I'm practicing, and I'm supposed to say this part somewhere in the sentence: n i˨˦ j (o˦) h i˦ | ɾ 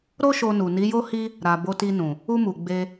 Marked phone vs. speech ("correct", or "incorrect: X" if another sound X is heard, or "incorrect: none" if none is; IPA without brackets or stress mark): correct